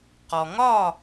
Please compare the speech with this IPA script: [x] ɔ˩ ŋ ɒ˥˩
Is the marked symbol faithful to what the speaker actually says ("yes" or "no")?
no